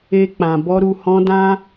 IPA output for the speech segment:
e˧ k͡p ã˨ b ɔ˧ ɾ u˧ h ɔ̃˧ d ã˦

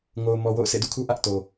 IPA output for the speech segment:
ŋ o˨ ʊ̯ m ɔ˨ w o̰˦˨ ʊ̯ sʰ ḛ˦˨ d ṵ˦˨ kʰ u˦ ʔ ä˦ ʔ t o˨

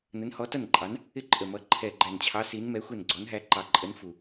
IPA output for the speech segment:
n ə˨˥ n h ɔ˨˥ t ʌ˥˩ n ǃʼ ɑ˨˥ n | ɪ˥˩ ǃʼ ə˨˩ m ʌ˨˥ ǃʰ ɛ˨˩ ɡ͡ǃ æ˨˩ n t͡ɕʰ ɑ˨˥ s i˨˥ n m ɛ˨˥ xʷ ɛ˥˩ n ɡ͡ǀ ɔ˨˥ n ɦ æ˨˥ ǃ ɑ˨˩ ǃʼ ə˨˥ n f u˨˩

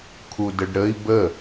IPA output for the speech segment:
kʰ u d ə ɖ ɾ ə i̯ b ə

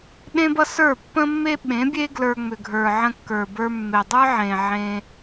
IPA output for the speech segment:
ɗ ẽ˦ b ʌ˦ s ə˞˦˨ pː ə̃˦ mː e˦ ɓ ẽ˨˦ bʲ e˦ ɡ l ə˞˧ ŋ͡m ʏ˨ ɡʱ ə˞˨ ʕ ə̃˧ kː ə˞˨ b ə˞˧ mː e˨ dˤ ə˞˦ ʕ ẽ˨ ʕ ẽ˧

